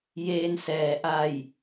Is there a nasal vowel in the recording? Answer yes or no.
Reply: no